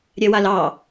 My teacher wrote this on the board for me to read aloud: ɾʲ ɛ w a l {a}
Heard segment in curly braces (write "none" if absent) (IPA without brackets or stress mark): ɑ